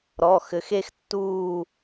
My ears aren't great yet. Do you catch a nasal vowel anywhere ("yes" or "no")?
no